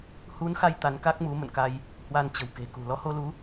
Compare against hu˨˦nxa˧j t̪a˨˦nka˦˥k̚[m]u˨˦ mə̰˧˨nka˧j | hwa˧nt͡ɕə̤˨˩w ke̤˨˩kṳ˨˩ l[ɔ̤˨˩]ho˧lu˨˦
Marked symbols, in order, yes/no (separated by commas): yes, no